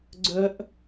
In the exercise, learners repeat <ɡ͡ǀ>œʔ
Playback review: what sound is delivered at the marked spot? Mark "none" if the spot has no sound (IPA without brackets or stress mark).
ɡ͡ǀ